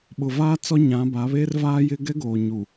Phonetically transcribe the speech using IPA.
ɓʊ˨vaː˦ t͡sɔ˦ɲã˨˦ba˨˦βeː˦r vaː˦jɪ˦ ɡɛ˦ɡoː˨ɲu˨

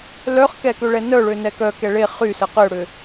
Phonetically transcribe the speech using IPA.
lœχkɛkøɭɛ nœɭønɛ kœkɛ ɭe χysə qøɽʏ

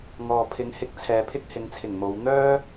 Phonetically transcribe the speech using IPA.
ŋɔː˨pʰɪ˨˧ŋhɪ˧k̚ t͡sʰɛː˨pʰɪ˥k̚hɪ˨˧ŋt͡sʰɪ˨˩ŋ mo˨˧w n̪œː˥

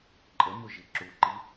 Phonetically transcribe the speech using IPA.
ǃʼəmʊʒi ǁuǃi

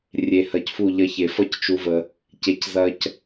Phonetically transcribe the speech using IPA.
rʲe˧ hɐ˧cfu˦˨ ʎɐ˧çe˨fʌ˦c t͡ʃu˧və˧ | ce˧c zɐ˦c

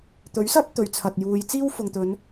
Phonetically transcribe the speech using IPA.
t̪ɵ˨˥ɥsɐ˥p̚ t̪ɵ˨ɥt͡sʰɐ˨t̚juː˨˧j t͡siː˥wfʊ˨ŋt̪ɵ˨˧n

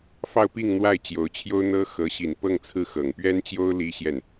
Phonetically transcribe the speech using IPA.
fɑ˥˧ʊ̯pi˥˧ŋ n̪wa˥˩ɪ̯t͡ɕjo˧˥ʊ̯t͡ɕʰjo˥ʊ̯n̪ɤ˥ xɤ˧˥ɕi˨˩n pɤ˥˧ŋt͡sʰɹ̩˥˩xɤ˨˩ŋ pɥɛ˥nt͡ɕjo˥ʊ̯ li˥ɕjɛ˥˩n

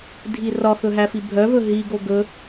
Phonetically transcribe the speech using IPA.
dʱirɒxɵ ɦæfibʱœvɵ ɦiɡo ɡɵ

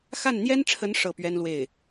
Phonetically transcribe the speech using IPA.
xa˥˩nn̪jɛ˥nʈ͡ʂʰə˧˥n ʂɤ˥˩pɥɛ˥nlwe˥˩ɪ̯

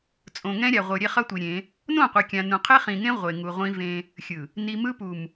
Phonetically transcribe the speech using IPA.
t͡sʼõ˨ŋɛ̃˦ɾʲa˨ʁʷɯ˨ ɾʲe˦χʌ˦tʷi˨ɾʲẽ˨˦ | nõ˦˨qʷe˨ kʲã˨nũ˨ qʰe˦χĩ˨ŋẽ˦ ʁʷe˨ŋu˨ʁʷĩ˦vẽ˦ | xʲɯ˨ | ni˨mɯ˦pu˨m

